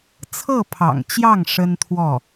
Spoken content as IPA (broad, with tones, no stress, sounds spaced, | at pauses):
t͡sʰ ɤ˥˩ pʰ ɑ̰˨˩ ŋ t͡ɕ j ɑ˥˩ ŋ ʂ ə˥ n t̪ʰ w ɔ˥˩